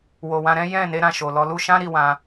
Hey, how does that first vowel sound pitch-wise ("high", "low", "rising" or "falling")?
low